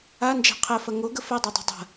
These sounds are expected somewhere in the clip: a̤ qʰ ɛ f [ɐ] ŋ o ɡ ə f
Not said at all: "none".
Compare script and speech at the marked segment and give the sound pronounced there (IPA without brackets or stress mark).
ɐ